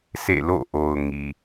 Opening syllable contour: falling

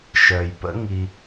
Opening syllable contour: low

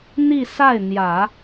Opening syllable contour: falling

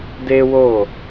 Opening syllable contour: high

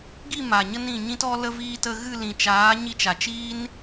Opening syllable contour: falling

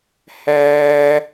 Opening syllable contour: high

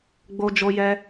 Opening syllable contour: high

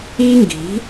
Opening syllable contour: high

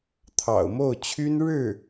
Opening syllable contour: low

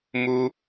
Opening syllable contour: high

